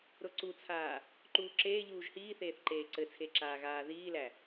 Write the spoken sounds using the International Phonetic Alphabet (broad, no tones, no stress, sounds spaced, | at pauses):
ɾ ʊ ǀ u t͡sʰ aː | ǃ uː ǁ eː ʎ uː ʒ h iː θ eː θ ǃ eː ǀ ɘ t͡sʰ e ǁ aː ɣ aː ð iː l æ